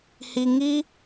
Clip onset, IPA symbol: h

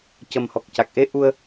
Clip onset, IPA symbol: c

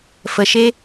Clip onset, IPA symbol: f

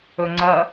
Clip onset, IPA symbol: ɵ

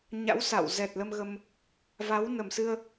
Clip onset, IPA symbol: ɲ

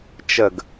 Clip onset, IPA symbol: t͡ʃ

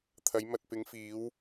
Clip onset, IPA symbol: t̪ʰ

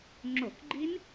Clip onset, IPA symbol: ŋ͡ǁ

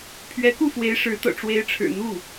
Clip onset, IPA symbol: pʰ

